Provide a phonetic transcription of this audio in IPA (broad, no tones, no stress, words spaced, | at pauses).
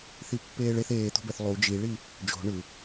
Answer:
θipːeːɭeθ eːt̪o̤bɛθ lˠu d͡ʒiɭi | d͡ʒo̤ ɳɯ